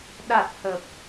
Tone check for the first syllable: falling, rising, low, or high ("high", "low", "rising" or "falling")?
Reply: low